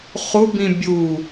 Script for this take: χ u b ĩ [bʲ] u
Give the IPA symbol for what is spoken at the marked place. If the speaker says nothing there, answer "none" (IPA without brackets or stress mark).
bʲ